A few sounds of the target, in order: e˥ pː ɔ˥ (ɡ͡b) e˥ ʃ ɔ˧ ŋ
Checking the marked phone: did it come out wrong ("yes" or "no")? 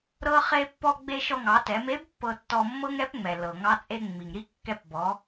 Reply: no